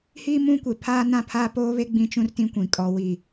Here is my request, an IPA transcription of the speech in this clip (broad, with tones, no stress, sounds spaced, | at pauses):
h iː˦ m ũ˦ kʷ e˨ pʰ aː˦ n ã˦ pʰ aː˦ p oː˦ β e˦ ɡ͡b ĩ˦ t͡ʃ ũ˦ r t ĩ˦ kʷ ĩ˨ kʼ ɔ˨ w i˨